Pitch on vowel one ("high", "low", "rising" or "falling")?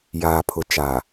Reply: low